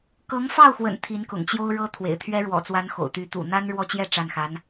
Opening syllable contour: rising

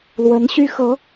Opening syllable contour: rising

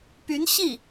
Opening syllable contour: rising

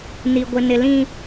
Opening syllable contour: low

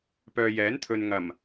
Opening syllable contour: low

